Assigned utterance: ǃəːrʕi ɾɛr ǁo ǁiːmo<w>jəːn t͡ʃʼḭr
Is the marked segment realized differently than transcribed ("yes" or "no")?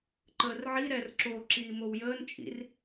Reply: no